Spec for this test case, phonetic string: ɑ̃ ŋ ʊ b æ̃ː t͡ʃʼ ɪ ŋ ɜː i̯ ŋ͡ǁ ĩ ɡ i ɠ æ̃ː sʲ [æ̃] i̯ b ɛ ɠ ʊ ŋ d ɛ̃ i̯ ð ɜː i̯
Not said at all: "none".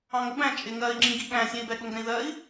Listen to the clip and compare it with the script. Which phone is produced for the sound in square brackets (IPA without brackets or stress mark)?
æ̃